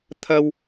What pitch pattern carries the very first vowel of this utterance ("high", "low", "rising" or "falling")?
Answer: high